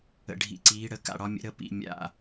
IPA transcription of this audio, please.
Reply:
ə̰˨˩ ɖʱ ḭ˩˧ ǀ iː˩˧ ɽ ə˩˧ k a̰˨˩ ɽ ɒ˩˧ mʲ ə̰˩˧ ɾ ə˩˧ p ḭ˨˩ mʲ a̰˨˩

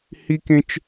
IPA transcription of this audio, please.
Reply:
h i˥ k ẽ˥ t͡ʃ

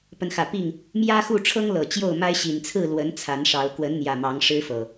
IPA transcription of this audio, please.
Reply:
p ə˨˦ n x ä˨˩ p i˥˨ ŋ | m j ä˦ x u˥˨ ʈ͡ʂʰ ɤ˦ ŋ l ɤ˨˩ t͡ɕ j o˥˨ ʊ̯ m a˦ ɪ̯ ɕ i˨˩ n t͡sʰ ɹ̩˥˨ l w ə˨˦ n t͡sʰ a˨˦ n ʂ ɑ˨˦ ʊ̯ k w ə˨˦ n n̪ j ä˨˩ m ɑ˨˦ ŋ ʂ ɻ̩˦ f ɤ˨˩

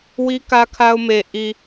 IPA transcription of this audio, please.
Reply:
w i˦ k ä˦ kʰ a˦ ʊ̯ m e˨ ʔ i˨

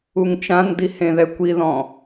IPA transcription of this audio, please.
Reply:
u ŋ t͡ʃ ã n d i h ẽ ð ɛ kʷ i ð ɔ̃

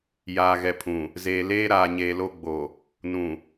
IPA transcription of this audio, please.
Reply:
j aː˨ ɣ ɛ˨ pʰ ũ˨ | z eː˨ l eː˦ ɾ aː˨ ɲ eː˨ l o˦ ɡ͡b o˨ | n ũ˨

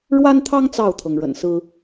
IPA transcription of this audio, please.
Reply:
ɻ w a˦ n t̪ʰ ɑ˦ ŋ t͡s ɑ˥˨ ʊ̯ t̪ʰ ɤ˩ ŋ ɻ ə̰˨˩ n s ɹ̩˦

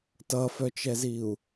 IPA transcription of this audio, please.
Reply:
t ʌ f œ t͡ʃ ɛ z i u̯

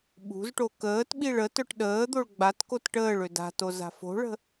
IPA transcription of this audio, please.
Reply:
ɓ ṳ z ʈ o k əː t ɓ i ɭ ə t œ ʈ ɗ əː d̪ o ɭ ɡ͡b a t k o t ʈ əː ɭ ø d a̤ t o z a̤ f o̤ ɭ ə̤

